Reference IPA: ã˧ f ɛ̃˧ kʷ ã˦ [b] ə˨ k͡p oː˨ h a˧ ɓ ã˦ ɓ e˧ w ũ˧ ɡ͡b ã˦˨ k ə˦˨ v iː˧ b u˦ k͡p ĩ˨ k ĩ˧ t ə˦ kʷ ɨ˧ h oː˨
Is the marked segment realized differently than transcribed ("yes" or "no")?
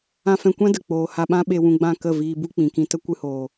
yes